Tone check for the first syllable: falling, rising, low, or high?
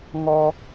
high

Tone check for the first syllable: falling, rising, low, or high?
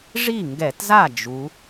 falling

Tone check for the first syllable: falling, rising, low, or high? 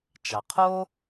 low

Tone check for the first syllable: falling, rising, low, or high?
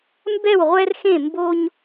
falling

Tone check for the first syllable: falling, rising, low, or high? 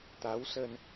rising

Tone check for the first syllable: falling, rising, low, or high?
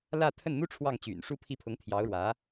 falling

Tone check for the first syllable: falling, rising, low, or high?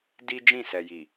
high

